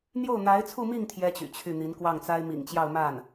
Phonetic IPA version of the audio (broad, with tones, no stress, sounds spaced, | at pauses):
n̪ j o˥˩ ʊ̯ n̪ a˧˥ ɪ̯ t͡sʰ u˥˧ m i˥˩ ŋ t̪ʰ j ɛ˥ t͡ɕ y̰˨˩ t͡ɕʰ y˥˩ n̪ i˧˥ n k w ɑ˥˩ ŋ t͡s a˥ ɪ̯ m ḭ˨˩ ŋ t͡ɕ j ɑ˥˧ ʊ̯ m a˥˩ n